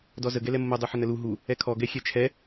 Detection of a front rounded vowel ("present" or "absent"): absent